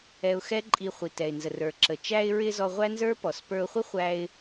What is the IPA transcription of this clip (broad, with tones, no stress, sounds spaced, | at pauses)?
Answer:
ɛ˧ ʊ̯ x ɛ˥ ǃʼ i˧ χʷ i˩ t ɛ˩ ɪ̯ n z ə˩ r ə˞˩ ǁ ə˩ t͡ʃ æ˧ ɪ̯ ɹ ɪ˧ z ɔ˧ ʁʷ æ˥ n z ə˞˥ p ɔ˩ s p ə˞˧ ʊ̯ χʷ ɪ˥ χʷ æ˧ ɪ̯